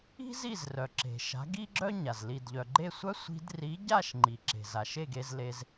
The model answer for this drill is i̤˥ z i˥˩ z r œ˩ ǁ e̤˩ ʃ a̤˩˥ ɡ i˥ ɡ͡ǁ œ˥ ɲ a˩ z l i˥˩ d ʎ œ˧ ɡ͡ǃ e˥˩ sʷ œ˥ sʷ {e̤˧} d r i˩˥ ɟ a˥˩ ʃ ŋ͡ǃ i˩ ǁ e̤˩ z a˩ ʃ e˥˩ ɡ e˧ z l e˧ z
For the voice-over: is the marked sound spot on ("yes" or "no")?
no